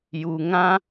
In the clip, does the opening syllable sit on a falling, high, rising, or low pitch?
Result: low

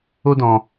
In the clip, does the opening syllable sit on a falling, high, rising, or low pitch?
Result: high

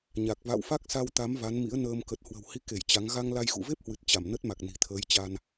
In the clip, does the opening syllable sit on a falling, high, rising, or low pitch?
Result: low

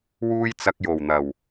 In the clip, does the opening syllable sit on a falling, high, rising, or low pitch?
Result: high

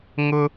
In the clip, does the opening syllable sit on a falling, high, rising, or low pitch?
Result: high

